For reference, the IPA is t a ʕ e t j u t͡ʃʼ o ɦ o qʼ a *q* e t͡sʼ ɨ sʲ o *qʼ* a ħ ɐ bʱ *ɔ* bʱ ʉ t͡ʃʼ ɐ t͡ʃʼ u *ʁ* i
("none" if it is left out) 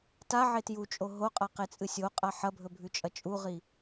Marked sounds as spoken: q, qʼ, ɵ, ʁ

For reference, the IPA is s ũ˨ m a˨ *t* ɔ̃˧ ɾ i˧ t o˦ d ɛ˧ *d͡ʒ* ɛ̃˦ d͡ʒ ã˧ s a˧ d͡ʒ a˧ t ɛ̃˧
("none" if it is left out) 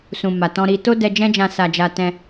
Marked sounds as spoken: t, d͡ʒ

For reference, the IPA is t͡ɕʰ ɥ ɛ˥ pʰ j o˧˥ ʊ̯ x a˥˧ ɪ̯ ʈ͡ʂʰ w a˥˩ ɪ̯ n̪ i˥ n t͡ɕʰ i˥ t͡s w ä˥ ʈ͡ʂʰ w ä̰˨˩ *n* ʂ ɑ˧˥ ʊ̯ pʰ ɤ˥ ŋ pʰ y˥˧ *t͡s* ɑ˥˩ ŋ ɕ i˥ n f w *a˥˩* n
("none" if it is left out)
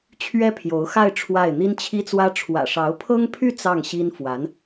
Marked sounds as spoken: none, t͡s, a˧˥

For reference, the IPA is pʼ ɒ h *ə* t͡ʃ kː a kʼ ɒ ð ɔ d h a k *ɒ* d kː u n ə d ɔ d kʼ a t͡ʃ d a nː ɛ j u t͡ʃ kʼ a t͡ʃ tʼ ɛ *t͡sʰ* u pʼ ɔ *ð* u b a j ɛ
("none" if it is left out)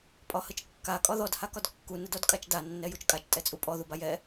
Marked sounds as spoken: ə, ɒ, t͡sʼ, ð

